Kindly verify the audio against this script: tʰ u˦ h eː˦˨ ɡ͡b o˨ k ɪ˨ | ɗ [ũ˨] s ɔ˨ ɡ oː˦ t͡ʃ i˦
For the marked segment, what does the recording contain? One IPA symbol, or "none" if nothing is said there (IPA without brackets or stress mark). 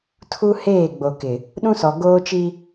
ũ˦